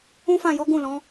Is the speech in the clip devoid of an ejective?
yes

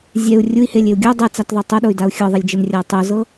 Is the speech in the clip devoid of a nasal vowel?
yes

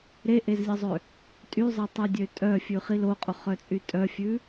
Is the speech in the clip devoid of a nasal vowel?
yes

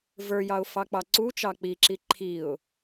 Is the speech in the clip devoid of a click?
no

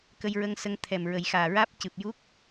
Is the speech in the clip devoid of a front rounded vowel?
yes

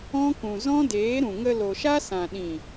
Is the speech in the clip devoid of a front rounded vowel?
yes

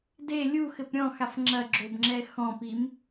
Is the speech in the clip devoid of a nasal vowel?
no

